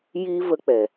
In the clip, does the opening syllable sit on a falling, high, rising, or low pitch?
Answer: high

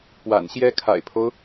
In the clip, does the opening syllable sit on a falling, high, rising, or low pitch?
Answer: low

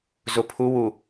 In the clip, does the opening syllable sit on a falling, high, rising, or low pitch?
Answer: low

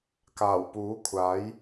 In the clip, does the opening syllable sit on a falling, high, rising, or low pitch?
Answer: low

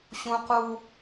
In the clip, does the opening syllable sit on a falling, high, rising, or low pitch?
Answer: high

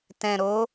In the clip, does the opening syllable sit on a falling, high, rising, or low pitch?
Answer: low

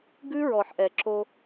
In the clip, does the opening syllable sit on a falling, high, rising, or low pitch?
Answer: high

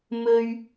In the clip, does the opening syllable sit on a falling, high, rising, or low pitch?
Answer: high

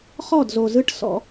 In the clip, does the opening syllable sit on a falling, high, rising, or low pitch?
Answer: falling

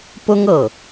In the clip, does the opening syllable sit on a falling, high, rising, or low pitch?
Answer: high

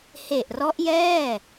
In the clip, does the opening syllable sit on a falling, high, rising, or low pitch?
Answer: low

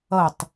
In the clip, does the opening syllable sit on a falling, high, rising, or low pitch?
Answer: falling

